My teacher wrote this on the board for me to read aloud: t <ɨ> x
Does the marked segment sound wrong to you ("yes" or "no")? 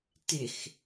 yes